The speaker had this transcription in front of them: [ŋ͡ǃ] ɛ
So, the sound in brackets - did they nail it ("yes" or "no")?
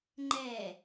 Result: yes